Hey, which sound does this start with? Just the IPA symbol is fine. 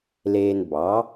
l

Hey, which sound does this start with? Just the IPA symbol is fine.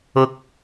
ʊ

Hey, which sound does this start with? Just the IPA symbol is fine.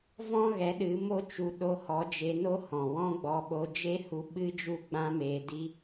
v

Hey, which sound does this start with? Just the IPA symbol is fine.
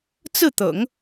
t͡s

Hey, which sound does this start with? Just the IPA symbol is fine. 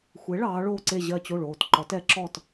xʷ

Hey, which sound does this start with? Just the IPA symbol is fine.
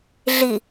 ɮ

